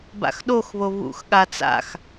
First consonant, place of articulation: labial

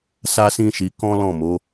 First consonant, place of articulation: alveolar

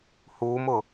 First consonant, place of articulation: glottal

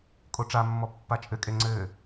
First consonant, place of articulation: velar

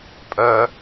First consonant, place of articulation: labial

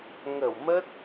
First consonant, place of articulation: velar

